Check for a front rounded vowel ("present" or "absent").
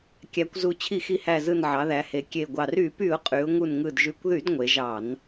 present